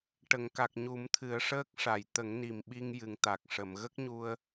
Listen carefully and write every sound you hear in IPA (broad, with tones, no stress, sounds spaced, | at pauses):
ʈ ə˨˩˨ ŋ k a˨˩ k̚ ɲ u˨˩˦ m t̪ʰ ɨ˨˩˦ ə̯ ʂ əː˦˥ k̚ ʂ a˨˩˨ j t̪ ə˨˩˦ ŋ n i˨˩ m ɓ i˧ ŋ j ɨ˨˩˨ ŋ t̪ a˨˩ k̚ ʂ ə˨˩˨ m ɣ ə˦˥ k̚ ɲ u˧ ə̯